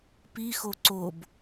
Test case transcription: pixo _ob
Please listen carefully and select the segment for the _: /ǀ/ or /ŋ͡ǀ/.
ǀ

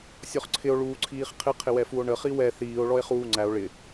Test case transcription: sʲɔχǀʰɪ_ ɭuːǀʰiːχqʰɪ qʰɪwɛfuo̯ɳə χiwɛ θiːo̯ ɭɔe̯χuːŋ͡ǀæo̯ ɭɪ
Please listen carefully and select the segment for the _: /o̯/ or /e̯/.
o̯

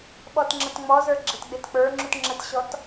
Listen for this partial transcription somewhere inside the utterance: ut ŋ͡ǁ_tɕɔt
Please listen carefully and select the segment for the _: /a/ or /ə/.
ə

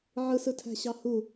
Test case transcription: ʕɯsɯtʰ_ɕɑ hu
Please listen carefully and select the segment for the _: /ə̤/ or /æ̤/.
æ̤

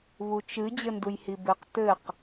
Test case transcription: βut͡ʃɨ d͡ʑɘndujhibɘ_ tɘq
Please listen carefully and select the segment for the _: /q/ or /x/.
q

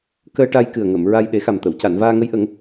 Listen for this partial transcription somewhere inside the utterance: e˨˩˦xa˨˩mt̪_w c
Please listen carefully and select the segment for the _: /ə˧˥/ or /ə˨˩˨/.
ə˨˩˨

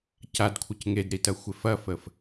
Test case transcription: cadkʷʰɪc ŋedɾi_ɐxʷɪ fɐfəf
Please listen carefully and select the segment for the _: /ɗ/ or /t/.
t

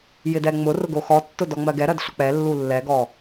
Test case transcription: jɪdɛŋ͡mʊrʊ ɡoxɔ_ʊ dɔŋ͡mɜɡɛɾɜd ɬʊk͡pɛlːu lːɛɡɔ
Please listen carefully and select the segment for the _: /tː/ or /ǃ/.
tː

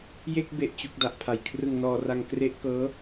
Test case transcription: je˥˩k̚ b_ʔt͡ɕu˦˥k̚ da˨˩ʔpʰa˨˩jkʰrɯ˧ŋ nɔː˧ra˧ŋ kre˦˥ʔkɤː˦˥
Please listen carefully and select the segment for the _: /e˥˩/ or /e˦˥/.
e˥˩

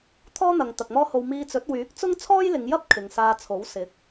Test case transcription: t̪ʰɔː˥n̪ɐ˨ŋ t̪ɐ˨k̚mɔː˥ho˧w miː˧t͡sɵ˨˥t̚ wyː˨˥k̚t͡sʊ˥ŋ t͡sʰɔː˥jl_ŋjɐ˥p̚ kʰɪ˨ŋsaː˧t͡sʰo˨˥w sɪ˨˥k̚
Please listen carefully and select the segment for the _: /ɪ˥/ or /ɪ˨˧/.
ɪ˨˧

